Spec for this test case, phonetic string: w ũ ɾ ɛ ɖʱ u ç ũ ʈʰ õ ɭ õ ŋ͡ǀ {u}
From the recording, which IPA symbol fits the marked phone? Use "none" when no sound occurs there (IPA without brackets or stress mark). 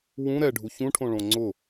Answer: ʊ